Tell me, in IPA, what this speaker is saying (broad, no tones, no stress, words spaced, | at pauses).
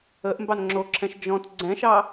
əʔmbɑn ŋ͡ǁoǁʰɛ̃ʃ d͡ʒɔ̃t ɡ͡ǀɛ̃ʃɑ